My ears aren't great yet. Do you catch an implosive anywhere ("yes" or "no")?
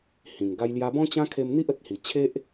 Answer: no